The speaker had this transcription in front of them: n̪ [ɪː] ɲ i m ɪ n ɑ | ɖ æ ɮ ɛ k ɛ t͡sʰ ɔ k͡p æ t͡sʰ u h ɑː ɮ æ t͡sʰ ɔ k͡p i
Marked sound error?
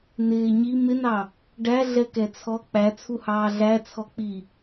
no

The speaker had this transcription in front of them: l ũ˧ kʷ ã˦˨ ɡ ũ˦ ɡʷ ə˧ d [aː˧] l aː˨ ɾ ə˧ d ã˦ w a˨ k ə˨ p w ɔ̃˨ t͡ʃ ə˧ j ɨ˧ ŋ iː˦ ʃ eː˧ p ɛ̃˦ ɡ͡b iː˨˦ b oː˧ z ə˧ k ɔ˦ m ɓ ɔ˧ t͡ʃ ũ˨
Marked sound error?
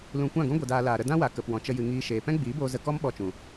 no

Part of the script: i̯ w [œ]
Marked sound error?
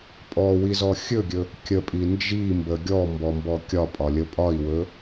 yes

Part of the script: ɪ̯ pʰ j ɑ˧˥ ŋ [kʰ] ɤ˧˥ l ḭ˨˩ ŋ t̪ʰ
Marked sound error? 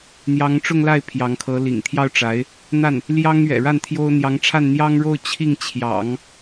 no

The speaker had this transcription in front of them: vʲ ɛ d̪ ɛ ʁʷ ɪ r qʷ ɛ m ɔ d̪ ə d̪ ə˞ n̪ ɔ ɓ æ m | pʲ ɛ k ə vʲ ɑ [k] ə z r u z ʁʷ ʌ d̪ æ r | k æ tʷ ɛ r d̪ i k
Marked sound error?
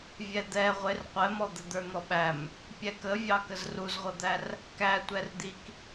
no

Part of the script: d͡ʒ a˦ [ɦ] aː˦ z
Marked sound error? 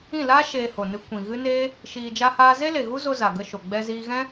yes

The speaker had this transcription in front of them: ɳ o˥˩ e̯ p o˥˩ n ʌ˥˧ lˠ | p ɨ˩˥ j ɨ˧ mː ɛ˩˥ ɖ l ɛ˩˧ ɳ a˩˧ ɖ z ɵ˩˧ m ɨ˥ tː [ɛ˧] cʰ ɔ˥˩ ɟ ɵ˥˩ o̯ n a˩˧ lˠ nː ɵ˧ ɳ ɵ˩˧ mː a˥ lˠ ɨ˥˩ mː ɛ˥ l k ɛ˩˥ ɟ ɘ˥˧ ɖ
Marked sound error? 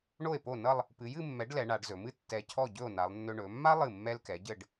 no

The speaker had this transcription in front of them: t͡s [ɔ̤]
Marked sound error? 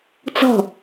no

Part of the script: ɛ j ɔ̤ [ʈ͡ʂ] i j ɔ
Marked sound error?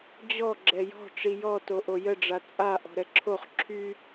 no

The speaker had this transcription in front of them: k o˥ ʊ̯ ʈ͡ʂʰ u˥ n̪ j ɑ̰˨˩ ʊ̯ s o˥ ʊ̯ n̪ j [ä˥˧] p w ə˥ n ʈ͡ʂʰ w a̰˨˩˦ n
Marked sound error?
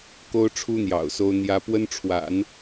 yes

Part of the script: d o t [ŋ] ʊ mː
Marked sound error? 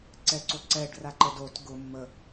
yes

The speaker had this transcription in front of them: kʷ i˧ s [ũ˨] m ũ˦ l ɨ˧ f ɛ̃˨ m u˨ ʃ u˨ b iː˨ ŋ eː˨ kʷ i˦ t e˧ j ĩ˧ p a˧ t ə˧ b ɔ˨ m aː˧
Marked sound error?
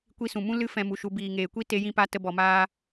no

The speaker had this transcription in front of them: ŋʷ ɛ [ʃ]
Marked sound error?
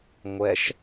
no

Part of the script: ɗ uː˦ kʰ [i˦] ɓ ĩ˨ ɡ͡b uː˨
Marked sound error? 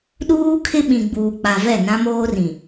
yes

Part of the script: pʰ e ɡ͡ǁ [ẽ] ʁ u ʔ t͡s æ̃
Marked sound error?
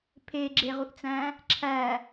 yes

